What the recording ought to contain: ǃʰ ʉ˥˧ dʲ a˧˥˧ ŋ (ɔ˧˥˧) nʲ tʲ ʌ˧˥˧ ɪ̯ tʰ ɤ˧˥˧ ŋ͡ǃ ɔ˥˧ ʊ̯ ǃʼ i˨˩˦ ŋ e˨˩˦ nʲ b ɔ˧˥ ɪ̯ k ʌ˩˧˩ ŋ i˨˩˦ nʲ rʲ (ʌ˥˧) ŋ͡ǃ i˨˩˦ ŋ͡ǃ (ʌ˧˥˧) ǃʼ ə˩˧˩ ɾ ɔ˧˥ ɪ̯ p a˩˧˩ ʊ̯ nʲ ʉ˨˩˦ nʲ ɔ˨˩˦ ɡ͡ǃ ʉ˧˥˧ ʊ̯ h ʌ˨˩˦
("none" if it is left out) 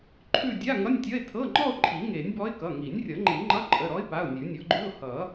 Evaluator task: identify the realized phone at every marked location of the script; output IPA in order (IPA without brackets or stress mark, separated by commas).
ʌ˧˥˧, ʌ˨˩˦, ʌ˧˥˧